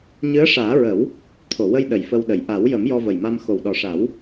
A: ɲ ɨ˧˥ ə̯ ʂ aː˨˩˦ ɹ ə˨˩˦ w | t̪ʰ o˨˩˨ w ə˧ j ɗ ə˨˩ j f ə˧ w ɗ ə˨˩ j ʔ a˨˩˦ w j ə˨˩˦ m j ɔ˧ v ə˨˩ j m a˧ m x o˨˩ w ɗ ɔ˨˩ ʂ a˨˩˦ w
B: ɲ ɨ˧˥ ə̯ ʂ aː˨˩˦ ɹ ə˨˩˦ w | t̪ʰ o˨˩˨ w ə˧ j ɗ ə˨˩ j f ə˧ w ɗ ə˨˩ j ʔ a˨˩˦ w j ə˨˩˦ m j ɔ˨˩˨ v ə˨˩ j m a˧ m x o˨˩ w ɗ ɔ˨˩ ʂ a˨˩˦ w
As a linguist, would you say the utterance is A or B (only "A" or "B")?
A